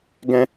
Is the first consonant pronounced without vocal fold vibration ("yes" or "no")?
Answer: no